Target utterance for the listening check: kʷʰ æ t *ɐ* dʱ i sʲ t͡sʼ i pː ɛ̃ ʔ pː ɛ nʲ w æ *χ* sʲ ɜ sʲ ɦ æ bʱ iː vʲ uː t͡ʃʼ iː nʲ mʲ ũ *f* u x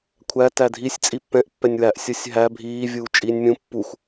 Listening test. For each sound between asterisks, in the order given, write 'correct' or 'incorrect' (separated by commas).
incorrect, incorrect, incorrect